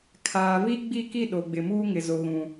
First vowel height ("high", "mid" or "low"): low